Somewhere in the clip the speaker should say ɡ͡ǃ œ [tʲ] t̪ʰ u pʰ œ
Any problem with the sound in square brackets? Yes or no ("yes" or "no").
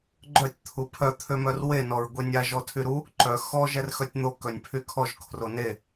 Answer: no